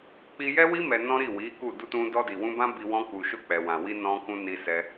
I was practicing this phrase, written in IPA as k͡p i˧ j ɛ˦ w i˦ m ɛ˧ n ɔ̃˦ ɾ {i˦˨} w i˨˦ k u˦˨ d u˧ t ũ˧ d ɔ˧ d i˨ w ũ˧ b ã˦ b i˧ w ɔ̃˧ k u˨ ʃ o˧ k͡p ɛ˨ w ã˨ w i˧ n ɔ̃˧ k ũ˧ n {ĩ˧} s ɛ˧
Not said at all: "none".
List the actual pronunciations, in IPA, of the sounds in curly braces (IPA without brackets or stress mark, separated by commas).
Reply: i˦˨, i˧